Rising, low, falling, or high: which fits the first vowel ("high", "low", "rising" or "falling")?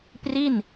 falling